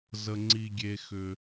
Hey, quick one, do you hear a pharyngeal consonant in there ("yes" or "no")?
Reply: no